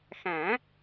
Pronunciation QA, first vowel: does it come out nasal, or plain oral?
nasal